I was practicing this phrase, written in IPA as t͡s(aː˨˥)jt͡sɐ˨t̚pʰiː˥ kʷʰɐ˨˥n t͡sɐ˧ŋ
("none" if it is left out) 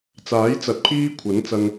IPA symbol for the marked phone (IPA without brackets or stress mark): aː˨˥